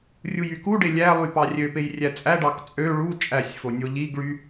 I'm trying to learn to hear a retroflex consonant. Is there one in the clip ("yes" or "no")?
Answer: yes